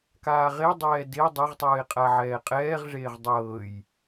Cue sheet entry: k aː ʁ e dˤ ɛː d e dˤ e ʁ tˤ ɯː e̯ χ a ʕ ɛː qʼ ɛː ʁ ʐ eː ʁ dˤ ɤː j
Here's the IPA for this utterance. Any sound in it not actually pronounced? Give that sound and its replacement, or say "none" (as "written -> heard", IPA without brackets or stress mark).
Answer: χ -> qʼ